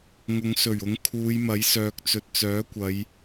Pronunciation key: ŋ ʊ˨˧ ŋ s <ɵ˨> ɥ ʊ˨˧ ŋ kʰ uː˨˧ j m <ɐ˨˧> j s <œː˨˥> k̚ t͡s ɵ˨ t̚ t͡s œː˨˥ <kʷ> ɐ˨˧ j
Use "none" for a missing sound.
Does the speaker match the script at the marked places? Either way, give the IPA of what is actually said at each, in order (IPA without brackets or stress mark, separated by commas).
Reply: ɵ˨˩, ɐ˨˥, œː˨, kʷ